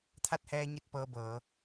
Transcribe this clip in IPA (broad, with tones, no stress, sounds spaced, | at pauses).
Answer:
t̪ʰ a˥˨ t̚ h ɛː˧ ɲ i˧ t̚ p ɤː˧˥ b ɤː˩˧